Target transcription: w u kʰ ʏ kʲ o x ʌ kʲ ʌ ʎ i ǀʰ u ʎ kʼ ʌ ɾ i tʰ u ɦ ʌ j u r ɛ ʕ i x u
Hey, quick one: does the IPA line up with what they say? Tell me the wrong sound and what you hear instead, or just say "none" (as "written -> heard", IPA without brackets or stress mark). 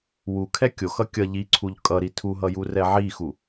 ʏ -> ɛ